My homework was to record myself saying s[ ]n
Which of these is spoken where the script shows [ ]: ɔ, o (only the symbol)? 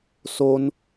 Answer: o